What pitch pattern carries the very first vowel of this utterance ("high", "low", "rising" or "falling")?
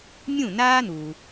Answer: falling